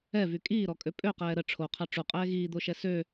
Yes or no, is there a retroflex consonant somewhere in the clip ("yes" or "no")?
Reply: yes